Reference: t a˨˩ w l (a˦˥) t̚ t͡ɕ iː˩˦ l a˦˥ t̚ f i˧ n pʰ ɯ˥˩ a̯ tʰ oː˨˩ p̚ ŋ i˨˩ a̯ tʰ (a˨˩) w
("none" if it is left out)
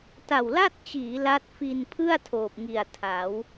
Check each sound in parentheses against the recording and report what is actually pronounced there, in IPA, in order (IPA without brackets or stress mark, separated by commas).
a˥˩, a˩˦